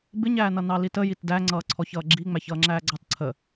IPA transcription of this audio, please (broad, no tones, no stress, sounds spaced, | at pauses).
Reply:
b ɪ ɲ æː n ʌ n ɑ l i t ə j i t d æ ŋ͡ǀ ʌː ǀʰ ɔ ç ʌː ɡ͡ǁ i ŋ͡m æ ç ʌː ŋ͡ǁ æː ɡ͡ǀ ɑ t ǀʰ ə